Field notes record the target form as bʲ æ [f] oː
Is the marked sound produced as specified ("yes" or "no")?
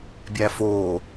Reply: yes